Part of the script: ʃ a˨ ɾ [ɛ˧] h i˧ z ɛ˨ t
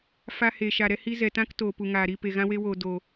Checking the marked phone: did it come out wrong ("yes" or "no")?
no